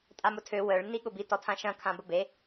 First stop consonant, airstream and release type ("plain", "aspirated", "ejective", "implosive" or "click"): ejective